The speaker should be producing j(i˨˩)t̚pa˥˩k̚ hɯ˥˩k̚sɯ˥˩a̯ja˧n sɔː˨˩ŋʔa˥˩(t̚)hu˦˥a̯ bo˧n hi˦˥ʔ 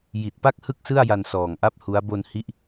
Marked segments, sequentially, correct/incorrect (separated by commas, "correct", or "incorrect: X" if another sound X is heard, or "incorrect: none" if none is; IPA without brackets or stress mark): correct, incorrect: p̚